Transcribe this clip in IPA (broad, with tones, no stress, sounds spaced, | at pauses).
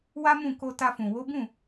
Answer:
w a˦ m ũ˦˨ k o˧ t a˧ f ũ˨ w o˨˦ b ũ˦˨